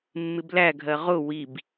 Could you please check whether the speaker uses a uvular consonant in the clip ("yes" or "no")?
yes